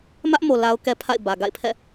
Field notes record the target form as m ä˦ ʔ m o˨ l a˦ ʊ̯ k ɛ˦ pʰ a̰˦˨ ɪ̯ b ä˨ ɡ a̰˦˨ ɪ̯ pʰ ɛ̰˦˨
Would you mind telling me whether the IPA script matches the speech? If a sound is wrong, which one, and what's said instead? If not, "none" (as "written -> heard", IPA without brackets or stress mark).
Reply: none